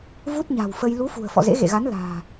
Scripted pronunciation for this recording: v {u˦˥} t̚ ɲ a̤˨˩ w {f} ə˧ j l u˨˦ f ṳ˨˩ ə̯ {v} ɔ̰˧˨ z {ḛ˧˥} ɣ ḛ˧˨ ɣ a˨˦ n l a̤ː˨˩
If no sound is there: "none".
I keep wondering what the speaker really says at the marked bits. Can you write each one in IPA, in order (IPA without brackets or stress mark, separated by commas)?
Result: u˦˥, f, f, ḛ˧˥